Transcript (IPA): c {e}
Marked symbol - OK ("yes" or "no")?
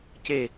yes